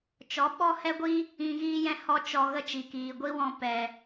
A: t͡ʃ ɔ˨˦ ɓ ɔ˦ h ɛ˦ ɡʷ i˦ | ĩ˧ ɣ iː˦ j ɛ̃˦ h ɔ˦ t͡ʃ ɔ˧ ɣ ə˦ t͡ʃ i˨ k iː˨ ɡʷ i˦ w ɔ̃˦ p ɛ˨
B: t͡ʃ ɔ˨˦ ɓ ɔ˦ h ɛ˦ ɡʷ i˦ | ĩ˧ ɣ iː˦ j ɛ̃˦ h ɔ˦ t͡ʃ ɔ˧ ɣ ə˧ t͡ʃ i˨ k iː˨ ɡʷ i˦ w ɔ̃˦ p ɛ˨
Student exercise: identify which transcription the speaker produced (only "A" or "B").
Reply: A